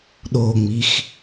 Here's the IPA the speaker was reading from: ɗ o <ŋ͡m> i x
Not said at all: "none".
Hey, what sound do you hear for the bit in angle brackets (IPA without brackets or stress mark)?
ŋ͡m